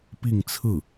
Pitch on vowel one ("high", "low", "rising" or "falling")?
falling